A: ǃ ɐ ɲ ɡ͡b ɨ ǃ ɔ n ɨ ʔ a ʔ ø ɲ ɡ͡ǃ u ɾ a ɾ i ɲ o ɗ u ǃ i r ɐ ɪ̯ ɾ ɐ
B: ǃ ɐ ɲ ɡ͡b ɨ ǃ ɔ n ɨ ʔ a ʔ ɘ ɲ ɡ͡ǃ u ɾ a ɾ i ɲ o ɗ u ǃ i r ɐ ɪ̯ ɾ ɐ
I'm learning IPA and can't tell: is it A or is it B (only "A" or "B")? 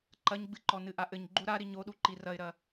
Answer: B